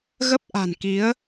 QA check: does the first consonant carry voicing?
yes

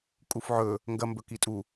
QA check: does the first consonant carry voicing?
no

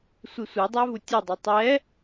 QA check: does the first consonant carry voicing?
no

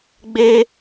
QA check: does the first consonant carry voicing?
yes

